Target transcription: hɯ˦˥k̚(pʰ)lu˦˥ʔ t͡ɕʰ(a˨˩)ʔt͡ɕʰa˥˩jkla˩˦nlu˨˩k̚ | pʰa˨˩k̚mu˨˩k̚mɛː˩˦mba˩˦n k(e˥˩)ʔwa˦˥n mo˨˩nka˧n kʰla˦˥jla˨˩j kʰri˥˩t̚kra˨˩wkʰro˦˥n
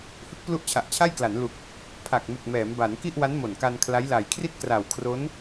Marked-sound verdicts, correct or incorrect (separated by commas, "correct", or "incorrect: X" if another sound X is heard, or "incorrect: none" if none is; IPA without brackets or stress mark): incorrect: p, correct, incorrect: i˥˩